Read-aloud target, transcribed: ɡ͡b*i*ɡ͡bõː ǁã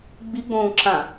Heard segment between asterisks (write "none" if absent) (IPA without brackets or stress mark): i